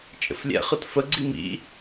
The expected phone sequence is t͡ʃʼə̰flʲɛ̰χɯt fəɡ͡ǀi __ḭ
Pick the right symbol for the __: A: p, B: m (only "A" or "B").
B